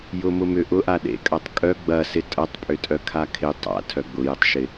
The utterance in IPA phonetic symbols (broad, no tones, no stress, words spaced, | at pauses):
jʊmʊmʏ ʔʊʔa ɗḛkʼɐtˤ kʼœ ɡ͡bɐsɪ tʼɐtˤpʼʏtʼœkʰa kʰɪ tˤa̰ tʰœɡ͡bʊjɪtˤʃɪ